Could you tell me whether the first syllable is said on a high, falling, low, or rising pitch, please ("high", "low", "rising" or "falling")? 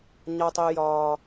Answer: high